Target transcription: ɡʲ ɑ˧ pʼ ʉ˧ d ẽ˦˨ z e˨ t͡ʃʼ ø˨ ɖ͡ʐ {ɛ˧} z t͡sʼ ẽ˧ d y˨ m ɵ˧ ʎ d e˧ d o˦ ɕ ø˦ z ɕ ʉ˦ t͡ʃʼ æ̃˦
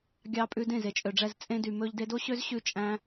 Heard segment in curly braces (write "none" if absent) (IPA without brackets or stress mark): ɛ˧